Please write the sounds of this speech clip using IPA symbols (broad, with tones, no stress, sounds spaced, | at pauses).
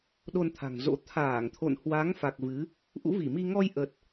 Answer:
ɗ o˧ n t̪ʰ a̤˨˩ ŋ z o̰˧˥ t̪ʰ aː˧˩ ŋ t̪ʰ o̰˧˨ n h w a˨˦ ŋ f a˨˩ k̚ v ɨ˨˦ | ʔ ṵ˧˥ v i˧˩ m i˧ ŋ ɔ˧ j ʔ ə˨˩ t̚